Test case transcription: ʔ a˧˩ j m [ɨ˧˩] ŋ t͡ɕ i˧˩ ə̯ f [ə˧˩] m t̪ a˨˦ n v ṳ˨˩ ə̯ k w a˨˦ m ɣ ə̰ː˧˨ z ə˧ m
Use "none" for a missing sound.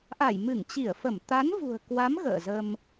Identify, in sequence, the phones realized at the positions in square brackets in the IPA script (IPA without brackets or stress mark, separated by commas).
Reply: ɨ˧˩, ə˧˩